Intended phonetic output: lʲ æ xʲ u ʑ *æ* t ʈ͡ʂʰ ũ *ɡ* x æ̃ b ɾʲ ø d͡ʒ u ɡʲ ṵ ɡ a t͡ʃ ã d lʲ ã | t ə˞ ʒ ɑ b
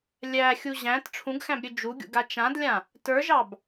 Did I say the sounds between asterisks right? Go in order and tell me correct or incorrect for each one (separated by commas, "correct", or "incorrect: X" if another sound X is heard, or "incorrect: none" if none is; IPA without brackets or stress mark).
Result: incorrect: æ̃, correct